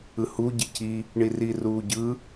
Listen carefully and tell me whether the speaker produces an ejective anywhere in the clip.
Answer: no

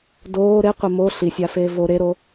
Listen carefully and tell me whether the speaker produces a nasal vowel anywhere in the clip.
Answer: no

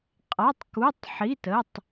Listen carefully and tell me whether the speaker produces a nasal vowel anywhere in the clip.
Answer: no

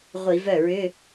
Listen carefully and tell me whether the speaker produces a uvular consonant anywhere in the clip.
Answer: yes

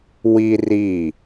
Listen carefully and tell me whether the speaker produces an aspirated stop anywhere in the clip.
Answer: no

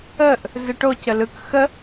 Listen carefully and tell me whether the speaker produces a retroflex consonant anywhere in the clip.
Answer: yes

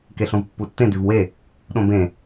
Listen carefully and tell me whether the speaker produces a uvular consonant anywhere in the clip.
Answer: no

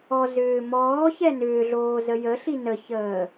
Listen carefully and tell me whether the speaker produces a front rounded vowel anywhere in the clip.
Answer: yes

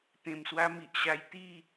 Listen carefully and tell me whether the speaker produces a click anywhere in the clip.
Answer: no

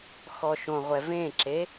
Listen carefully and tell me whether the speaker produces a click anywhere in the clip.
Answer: yes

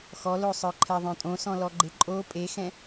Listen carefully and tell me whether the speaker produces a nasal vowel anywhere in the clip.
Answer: yes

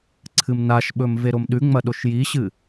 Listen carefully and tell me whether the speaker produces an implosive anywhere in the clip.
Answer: yes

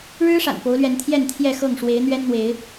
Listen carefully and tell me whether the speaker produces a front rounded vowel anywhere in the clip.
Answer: no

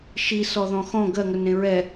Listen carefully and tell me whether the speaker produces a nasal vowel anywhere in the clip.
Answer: yes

